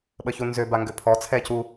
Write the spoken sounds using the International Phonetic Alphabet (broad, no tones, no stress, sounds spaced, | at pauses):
ɓ ə ç u n z ø b a ŋ ɡ ø pʰ ɔ t͡sʰ ɛ c u